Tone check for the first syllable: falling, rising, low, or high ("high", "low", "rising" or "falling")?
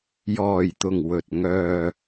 low